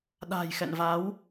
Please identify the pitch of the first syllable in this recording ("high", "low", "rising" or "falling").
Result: low